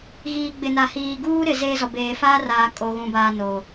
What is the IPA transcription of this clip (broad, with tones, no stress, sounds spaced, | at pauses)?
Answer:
ɣ iː˨ ɡ͡b ɪ˨ n a˨ h iː˨ ɡ uː˦ ɾ ɪ˨ z eː˦ z ɔ˨ b eː˨ f aː˦ r aː˨ kʼ o˨ ɣ ũ˨ b aː˨ n o˨